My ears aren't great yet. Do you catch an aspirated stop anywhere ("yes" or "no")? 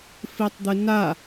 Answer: no